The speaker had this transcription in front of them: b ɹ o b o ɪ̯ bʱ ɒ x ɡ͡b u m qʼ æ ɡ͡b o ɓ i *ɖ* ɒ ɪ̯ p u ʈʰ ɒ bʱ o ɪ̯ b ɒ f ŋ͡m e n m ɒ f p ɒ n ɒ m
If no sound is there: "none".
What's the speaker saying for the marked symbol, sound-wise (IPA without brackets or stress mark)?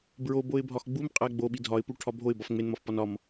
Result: dʱ